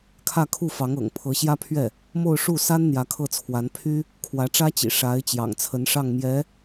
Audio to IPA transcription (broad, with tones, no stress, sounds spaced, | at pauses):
kʰ ä˥˧ kʰ u˥˩ f ɑ˧˥ ŋ ɤ̰˨˩ ŋ pʰ ɤ˧˥ ɕ j ä˥ pʰ ɥ ɛ˥˩ | m o˥˧ ʊ̯ ʂ u˥˩ s a˥ n n̪ j ä˧˥ kʰ ɤ˥˩ t͡sʰ w a˧˥ n pʰ y˥ | kʰ w ä˧˥ ʈ͡ʂ ä˥ t͡ɕ ḭ˨˩ ʂ a˧˥ ɪ̯ t͡ɕ j ɑ̰˨˩ ŋ t͡sʰ ə˧˥ n ʂ ɑ˥˩ ŋ m j ɛ˧˥